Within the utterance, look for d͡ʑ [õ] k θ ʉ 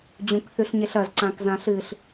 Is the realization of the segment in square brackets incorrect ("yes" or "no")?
yes